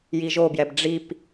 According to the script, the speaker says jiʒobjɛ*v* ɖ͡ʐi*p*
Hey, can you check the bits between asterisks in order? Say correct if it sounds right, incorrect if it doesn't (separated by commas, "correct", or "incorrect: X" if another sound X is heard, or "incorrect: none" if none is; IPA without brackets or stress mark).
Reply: incorrect: b, correct